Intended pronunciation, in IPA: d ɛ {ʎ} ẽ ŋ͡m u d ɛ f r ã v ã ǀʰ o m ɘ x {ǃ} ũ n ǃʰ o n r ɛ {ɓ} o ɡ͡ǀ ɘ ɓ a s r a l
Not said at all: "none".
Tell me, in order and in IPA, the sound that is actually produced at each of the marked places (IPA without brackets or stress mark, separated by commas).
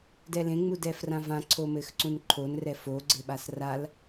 l, ǀ, f